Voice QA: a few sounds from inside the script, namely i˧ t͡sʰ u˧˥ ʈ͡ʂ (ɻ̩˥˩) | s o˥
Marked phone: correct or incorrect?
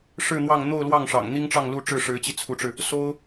incorrect